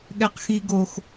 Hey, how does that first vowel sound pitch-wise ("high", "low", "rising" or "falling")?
high